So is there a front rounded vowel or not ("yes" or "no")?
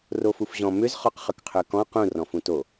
yes